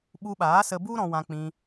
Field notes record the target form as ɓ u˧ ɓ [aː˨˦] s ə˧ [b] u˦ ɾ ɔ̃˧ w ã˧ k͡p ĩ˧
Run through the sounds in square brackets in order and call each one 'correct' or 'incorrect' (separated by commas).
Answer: correct, correct